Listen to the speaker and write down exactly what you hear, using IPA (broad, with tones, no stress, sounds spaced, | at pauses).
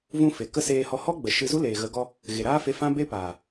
v ũ˧ f e˨ k ə˦ s eː˧ h ɔ˧ h ɔ˦ ɡ͡b ə˨ ʃ ɨ˧ z u˦ l eː˨ ɣ ə˨˦ ɡ ɔ˧ | ɣ e˨ ɾ aː˦ f e˧ f ã˦ b e˦ p aː˨